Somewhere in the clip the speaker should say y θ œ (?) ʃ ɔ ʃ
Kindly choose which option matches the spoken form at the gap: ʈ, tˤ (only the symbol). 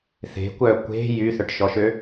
ʈ